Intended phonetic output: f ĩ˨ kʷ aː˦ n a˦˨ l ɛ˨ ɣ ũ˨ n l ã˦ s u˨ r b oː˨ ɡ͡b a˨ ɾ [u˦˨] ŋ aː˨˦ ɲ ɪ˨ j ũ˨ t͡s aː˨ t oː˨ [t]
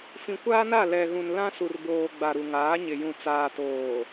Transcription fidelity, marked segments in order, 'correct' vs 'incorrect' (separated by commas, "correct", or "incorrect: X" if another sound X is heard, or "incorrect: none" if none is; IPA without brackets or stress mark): incorrect: u˨, incorrect: none